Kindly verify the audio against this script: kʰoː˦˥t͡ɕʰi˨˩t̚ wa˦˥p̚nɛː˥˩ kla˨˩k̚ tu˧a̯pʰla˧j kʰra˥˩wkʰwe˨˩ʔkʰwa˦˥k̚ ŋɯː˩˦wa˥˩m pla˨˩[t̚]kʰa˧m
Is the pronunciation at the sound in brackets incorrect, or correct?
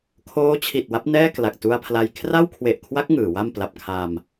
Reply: incorrect